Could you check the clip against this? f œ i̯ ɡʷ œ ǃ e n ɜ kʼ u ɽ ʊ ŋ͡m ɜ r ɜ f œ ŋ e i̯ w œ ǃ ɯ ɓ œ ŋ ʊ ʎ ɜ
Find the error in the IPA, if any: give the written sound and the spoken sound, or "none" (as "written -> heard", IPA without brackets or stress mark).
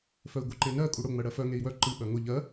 r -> ɽ